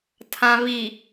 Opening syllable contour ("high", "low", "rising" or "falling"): low